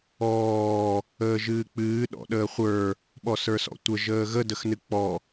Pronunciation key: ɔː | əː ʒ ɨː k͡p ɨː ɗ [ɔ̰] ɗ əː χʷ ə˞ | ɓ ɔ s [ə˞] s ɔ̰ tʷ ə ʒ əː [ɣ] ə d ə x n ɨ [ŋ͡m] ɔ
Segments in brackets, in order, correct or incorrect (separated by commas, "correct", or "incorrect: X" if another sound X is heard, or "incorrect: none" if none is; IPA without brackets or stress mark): correct, correct, correct, incorrect: k͡p